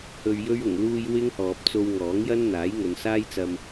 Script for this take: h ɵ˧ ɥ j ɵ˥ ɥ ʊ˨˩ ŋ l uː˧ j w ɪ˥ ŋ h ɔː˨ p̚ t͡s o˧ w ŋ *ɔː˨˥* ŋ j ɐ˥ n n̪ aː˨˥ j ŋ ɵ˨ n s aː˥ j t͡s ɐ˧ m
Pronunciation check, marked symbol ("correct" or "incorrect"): correct